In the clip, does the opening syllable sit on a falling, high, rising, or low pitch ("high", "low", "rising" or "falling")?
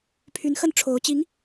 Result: rising